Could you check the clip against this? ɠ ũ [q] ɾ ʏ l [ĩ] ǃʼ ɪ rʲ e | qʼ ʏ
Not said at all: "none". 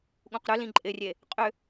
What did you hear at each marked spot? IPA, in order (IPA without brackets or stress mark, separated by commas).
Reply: q, ĩ